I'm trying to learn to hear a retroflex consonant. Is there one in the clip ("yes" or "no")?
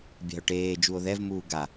yes